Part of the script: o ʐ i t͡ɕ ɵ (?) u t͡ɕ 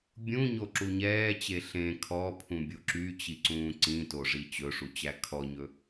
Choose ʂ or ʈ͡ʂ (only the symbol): ʂ